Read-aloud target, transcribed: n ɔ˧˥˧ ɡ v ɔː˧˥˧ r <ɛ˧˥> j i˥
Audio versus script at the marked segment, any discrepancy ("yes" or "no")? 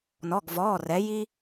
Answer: no